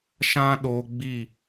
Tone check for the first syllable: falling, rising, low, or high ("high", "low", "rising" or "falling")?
high